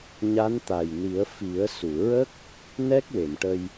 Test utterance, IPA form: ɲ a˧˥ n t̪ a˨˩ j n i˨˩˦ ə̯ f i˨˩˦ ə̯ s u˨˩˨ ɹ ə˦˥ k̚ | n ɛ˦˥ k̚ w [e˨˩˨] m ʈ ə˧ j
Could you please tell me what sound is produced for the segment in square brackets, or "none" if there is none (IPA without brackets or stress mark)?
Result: e˨˩˨